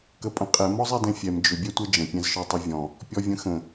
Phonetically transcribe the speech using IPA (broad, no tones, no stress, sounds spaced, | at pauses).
k ə pʼ ə̃ qʼ ɛ m ɔ zˤ ɛ d ɛ̃ fʲ ɛ m d͡ʒ ʏ bʲ ɛ tʷ ɛ d͡ʒ ə̃ pʲ ɛ̃ z ʃ ɔ tˤ ʏ vʲ ɔ̃ | pʲ ɔ vʲ ə̃ x ə̃